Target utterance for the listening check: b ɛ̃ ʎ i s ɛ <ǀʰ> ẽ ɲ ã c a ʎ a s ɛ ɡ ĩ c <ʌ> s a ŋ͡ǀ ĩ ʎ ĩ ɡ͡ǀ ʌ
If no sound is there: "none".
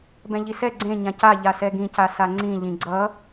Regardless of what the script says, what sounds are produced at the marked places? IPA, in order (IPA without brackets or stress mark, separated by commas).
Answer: ɡ͡ǀ, a